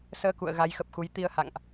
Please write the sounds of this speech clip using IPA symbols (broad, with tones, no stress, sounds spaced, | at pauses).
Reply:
s əː˧ k ṵ˧˨ ə̯ ɣ a˨˦ j x ə˨˩ p̚ x u˨˦ j t̪ i˧ ə̯ h a̰˧˨ ŋ ʔ